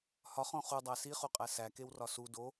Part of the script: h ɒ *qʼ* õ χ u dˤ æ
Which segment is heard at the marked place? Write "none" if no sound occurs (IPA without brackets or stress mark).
χ